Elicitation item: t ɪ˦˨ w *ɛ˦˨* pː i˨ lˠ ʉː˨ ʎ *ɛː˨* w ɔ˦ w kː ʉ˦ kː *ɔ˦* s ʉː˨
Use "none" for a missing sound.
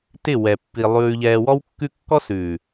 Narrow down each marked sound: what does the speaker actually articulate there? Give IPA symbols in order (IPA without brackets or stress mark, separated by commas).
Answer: ɛ˨, ɛː˨, ɔ˦